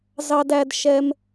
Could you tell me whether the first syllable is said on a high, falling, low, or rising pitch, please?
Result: high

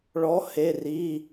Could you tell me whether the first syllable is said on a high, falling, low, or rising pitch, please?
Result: rising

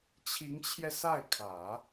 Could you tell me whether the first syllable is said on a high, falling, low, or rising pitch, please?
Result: rising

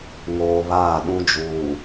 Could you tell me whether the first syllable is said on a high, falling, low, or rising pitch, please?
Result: low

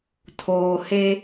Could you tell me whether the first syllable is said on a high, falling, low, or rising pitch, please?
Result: low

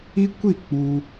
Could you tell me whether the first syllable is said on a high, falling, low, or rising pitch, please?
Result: high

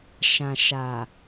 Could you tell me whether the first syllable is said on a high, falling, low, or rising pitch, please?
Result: low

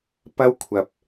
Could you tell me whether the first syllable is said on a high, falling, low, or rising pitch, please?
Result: high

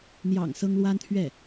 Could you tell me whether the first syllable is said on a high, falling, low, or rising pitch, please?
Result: low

